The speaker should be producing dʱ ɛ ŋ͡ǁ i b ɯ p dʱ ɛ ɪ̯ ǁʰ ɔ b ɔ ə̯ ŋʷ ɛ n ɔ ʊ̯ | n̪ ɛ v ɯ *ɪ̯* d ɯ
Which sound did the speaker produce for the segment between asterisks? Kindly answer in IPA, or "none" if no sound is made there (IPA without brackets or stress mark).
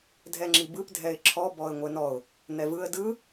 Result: ə̯